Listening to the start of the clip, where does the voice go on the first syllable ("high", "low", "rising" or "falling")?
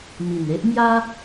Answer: low